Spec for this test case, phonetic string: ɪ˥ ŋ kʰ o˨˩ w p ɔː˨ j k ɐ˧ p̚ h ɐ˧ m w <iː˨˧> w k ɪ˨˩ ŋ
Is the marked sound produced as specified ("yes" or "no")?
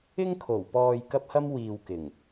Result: no